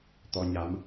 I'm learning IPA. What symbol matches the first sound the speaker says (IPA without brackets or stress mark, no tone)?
t̪